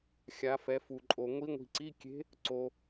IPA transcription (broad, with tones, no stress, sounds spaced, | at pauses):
xʲ a˧˥ f ɛ˧˥ f u˧ ǃʼ o˧ ŋʷ i˧˥ ŋʷ i̤˧ ǀ i˧˥˧ kʲ e̤˧˥ | ǀ o˧